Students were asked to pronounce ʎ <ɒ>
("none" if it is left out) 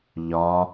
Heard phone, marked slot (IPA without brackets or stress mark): ɒ